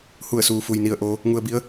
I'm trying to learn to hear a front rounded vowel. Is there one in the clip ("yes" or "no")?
no